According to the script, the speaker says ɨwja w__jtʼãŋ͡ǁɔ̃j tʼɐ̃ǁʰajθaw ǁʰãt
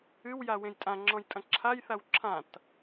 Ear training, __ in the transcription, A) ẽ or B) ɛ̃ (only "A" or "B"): A